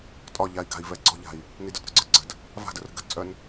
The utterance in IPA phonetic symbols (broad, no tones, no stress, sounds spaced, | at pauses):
tʼ ɒ ʎ a i̯ ɡ a̤ i̯ v ɛ ɡ͡ǀ ɔ̤ ʎ a̤ i̯ | n i d ə˞ t ɾ ə˞ ɡ͡ǀ ə˞ ɡ͡ǀ ə̤ d | v a̤ d ə r ə̤ ɡ ə̤ t t͡sʼ œ n